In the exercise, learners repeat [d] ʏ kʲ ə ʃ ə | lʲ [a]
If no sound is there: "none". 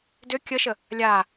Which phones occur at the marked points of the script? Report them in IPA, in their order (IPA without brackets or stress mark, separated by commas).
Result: d, a